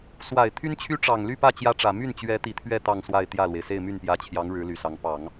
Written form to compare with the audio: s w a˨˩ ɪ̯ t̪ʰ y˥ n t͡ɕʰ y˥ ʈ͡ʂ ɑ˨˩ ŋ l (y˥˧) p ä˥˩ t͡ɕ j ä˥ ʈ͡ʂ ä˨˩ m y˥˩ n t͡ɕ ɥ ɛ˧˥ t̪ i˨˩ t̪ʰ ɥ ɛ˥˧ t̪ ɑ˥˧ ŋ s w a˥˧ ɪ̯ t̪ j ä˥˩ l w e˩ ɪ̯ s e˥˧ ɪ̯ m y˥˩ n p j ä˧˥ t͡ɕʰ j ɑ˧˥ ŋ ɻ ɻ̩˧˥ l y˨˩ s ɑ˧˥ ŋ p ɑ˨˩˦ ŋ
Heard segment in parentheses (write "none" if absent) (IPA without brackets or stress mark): y˥˧